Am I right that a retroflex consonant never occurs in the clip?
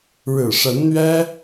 no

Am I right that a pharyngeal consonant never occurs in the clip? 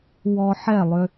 no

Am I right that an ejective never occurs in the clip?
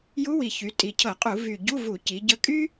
no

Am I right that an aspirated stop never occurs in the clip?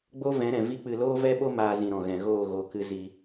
yes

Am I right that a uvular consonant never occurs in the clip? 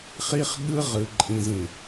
no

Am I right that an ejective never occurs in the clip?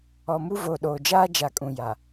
no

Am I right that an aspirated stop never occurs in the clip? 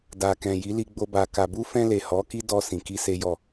yes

